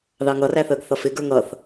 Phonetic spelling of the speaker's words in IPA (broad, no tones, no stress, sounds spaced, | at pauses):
ð ɑ ŋ ʌ r æ θ əː ɡ θ ʌ f ɪ ɡ ə˞ ŋ ʌ θ